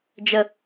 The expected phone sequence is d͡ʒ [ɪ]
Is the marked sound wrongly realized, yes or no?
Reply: yes